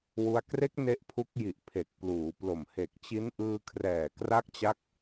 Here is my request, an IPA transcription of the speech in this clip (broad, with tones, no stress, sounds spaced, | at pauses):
w u˧ a̯ k r e˦˥ k̚ n e˦˥ ʔ pʰ u˦˥ k̚ j i˨˩ ʔ pʰ e˨˩ k̚ p l uː˩˦ p l o˨˩ m h e˨˩ k̚ t͡ɕ i˦˥ n ʔ ɯː˧ kʰ r ɛː˨˩ k r a˦˥ k̚ t͡ɕ a˦˥ k̚